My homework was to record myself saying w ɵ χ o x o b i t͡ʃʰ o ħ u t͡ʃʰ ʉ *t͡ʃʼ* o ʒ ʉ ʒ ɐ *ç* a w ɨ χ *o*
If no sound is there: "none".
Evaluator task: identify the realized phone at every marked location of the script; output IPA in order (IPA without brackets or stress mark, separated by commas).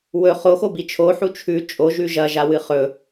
t͡ʃʼ, ʒ, ɵ